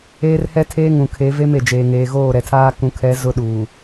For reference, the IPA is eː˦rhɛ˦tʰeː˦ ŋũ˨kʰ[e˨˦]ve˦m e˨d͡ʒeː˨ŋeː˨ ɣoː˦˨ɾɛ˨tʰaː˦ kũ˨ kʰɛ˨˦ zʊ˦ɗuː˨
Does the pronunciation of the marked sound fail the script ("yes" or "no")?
no